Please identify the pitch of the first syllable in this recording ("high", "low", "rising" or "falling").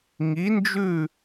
rising